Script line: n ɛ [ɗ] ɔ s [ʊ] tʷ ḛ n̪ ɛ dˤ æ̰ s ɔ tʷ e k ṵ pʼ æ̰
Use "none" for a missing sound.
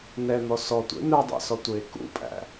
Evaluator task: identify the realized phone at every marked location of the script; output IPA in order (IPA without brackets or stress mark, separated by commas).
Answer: n̪, ɔ